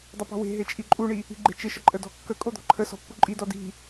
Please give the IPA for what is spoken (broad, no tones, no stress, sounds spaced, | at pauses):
dˤ ɪ p ɔ̤ w e̤ ɦ e t͡ʃʼ i ǃʼ u ɳ i | i̤ ɡ͡ǃ e̤ t͡ʃ ɪ ʃ ə ǃʼ ə d ɔ̤ kː ə kʼ o d̪ ɔ̤ ǃʰ ə s ɔ̤ pː u ǃʼ i d ɔ d i̤